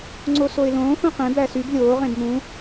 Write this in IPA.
ŋ͡ǀosoɪ̯lõː xũqẽ bæsyb lʲoː ʁẽbmũ

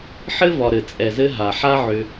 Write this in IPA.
ħɘ˦vɒ˨ ɾɘ˨ t͡sʼɛ˨zɘ˧ ɦa˨ħa˦ʕʏ˧

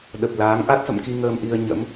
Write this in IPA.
ɗə˨˩p̚laː˨˦ŋ ʔa˦˥t̚sə̰˧˨mki˧ ŋəː˧mʔi˧ə̯ ɲə̰˧˥m

